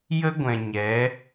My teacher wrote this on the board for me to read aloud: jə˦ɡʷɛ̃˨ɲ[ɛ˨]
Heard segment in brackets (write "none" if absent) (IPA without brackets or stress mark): ɛ˨˦